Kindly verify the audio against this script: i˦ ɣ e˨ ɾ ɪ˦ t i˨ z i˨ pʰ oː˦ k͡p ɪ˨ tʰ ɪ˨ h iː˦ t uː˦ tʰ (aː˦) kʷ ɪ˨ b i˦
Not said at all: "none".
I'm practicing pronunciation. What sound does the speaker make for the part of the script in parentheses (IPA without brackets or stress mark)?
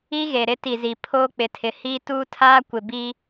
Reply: aː˦